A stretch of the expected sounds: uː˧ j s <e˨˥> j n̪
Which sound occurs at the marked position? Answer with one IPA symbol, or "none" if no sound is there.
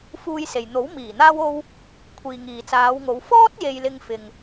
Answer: e˨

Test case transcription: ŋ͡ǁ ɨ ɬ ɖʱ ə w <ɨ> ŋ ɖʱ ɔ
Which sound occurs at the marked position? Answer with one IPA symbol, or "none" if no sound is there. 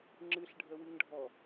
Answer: ɨ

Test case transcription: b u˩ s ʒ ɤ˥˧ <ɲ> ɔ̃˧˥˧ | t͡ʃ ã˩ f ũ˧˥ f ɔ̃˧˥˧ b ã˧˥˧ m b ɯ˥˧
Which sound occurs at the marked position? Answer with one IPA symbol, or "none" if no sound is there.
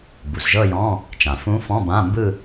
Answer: j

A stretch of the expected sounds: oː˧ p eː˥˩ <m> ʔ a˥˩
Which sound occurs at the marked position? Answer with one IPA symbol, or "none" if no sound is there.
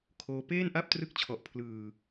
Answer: n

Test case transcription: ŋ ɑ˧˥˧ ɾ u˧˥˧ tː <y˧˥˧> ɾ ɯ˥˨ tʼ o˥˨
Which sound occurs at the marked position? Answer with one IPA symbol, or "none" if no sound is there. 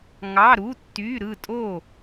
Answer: y˧˥˧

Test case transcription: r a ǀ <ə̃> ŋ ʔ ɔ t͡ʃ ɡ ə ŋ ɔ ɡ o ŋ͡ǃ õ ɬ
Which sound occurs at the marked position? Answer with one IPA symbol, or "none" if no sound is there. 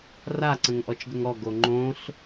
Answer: ə̃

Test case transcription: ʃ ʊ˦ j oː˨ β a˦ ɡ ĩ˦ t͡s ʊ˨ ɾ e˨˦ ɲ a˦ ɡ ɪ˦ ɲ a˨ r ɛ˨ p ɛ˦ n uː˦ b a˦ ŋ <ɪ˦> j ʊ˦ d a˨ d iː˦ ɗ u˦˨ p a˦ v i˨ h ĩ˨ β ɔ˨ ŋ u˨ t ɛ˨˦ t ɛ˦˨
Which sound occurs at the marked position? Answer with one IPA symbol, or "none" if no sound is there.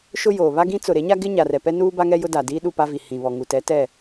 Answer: ɛ˦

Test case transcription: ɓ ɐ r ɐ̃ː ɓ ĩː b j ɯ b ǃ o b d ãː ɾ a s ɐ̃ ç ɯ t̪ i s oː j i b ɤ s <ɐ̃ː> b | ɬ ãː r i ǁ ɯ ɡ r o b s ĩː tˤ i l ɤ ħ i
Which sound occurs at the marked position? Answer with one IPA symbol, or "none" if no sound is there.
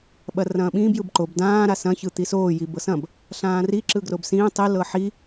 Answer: ɐ̃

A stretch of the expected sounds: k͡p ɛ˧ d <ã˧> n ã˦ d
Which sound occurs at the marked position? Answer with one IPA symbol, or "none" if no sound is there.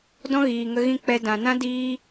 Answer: ã˨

